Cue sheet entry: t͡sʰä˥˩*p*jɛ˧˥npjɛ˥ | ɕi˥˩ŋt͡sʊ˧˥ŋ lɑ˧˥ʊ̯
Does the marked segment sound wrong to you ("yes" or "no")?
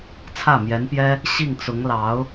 yes